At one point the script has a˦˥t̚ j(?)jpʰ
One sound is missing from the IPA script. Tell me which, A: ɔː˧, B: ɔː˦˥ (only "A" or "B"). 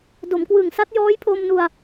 B